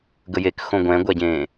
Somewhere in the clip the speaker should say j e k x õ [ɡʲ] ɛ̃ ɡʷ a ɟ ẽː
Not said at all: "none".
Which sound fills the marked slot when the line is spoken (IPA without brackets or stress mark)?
ɡʷ